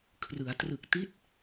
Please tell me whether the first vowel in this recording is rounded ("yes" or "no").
no